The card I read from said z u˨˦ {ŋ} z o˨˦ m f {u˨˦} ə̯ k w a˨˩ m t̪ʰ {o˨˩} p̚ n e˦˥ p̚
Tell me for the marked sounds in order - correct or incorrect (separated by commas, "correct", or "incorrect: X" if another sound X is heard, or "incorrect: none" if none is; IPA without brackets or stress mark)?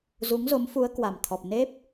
correct, correct, incorrect: ɔ˨˩